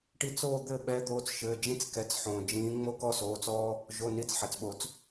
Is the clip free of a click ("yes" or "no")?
yes